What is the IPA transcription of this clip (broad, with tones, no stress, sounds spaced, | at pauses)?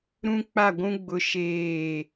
ɾ ũ˦ k͡p a˦˨ ɡʷ ũ˦ ɡ͡b ʊ˦ ʃ eː˦˨